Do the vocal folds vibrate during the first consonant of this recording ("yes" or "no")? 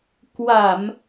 no